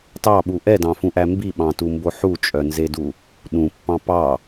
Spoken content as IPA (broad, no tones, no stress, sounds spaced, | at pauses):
t ɑ ɓ u ʔ ɛ d ɑ̃ f ũ ʔ æ m b i ɓ ɑ̃ t u m b o ħ u t͡ʃʼ œ n z e d u | ɗ ũ pː ɑ̃ p ɑ